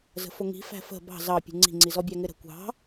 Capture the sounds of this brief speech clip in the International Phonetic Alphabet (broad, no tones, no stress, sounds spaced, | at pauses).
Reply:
z ə̤ f ʊ ŋ i̤ f æ̤ f ə̤ b ɑ̤ z ɑ pʲ ṳ ŋ͡ǀ i̤ ŋ͡ǀ i z ɔ bʲ æ ŋ ɪ ɾ ə̤ kʷ ɑ̤